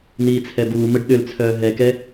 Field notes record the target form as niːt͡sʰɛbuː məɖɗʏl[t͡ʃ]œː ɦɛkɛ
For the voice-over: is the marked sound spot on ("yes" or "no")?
no